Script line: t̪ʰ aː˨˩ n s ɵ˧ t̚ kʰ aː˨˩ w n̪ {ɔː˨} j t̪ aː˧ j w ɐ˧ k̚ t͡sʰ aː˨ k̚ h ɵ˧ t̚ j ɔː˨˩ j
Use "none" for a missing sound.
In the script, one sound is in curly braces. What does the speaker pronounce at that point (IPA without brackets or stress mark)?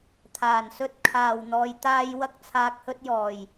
ɔː˨